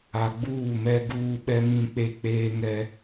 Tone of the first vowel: low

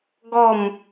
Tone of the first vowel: falling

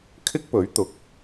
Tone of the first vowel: high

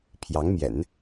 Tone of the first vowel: rising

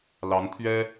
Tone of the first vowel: rising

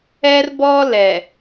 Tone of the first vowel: high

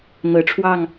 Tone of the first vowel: low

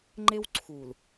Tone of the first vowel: high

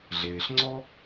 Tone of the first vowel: low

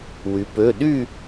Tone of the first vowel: rising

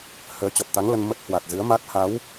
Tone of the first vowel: rising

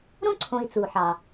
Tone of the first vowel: high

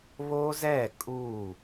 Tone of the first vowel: high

